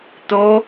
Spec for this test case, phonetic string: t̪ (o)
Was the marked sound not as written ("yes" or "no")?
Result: no